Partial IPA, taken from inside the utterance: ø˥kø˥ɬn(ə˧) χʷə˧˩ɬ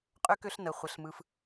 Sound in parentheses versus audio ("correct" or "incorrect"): correct